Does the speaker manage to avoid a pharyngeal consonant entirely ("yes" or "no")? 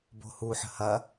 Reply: no